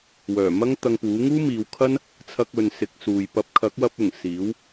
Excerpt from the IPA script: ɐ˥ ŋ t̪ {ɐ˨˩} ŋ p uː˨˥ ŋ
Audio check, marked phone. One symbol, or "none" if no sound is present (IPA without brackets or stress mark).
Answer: ɐ˧